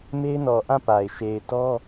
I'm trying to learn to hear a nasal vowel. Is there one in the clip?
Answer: yes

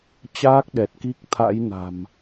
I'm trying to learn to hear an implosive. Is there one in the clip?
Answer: yes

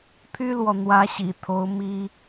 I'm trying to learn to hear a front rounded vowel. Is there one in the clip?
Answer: yes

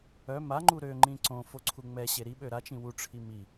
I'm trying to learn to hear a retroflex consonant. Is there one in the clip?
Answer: yes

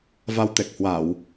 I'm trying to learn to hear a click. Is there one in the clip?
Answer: no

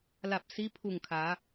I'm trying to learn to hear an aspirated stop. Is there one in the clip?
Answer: yes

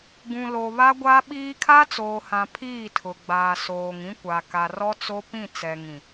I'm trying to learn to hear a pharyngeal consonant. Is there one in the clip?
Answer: no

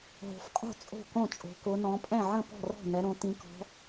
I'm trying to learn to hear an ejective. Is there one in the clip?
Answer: yes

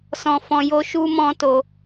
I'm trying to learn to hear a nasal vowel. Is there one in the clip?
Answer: yes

